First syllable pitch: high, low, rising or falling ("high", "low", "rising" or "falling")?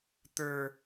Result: low